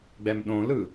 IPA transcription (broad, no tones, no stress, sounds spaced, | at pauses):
ɡ͡b ɛ m ɗ õ l ɯ